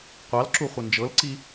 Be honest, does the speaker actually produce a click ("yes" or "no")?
yes